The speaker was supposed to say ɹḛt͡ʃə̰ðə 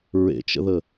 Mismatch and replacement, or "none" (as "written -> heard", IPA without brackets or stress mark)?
none